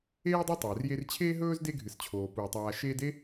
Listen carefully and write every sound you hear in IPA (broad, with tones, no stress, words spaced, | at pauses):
eː˥dˤɨ˦ tˤɵː˩rje˦r t͡ɕʰeː˥ɦɵː˥zde˦ɡʱɨ˩s t͡ɕʰoː˩puː˩tˤaː˨ ʃeː˦de˥